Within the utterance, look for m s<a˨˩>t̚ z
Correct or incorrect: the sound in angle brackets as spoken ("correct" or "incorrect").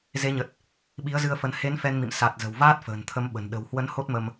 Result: correct